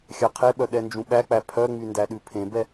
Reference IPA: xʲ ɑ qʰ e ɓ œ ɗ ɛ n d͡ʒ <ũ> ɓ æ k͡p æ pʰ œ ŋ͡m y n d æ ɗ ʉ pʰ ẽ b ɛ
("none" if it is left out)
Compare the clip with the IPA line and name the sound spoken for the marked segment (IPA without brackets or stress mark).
ũ